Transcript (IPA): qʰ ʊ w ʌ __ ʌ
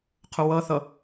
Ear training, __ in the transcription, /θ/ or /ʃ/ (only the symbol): θ